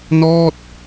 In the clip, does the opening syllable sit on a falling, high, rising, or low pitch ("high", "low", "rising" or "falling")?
falling